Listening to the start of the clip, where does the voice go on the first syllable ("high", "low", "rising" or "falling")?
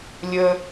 high